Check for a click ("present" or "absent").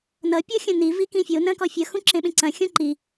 present